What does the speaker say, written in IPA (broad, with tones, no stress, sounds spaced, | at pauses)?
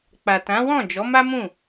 k͡p a˨ t ã˨˦ w ɔ̃˦˨ d͡ʒ ɔ˨˦ m a˦ m ũ˦˨